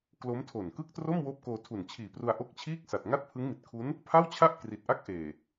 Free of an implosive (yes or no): yes